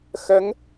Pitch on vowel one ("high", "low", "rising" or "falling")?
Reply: rising